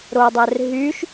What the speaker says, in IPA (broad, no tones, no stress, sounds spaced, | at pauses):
ɾ o dˤ ɛ r ɦ y ʃ